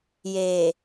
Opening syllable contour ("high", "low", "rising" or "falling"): low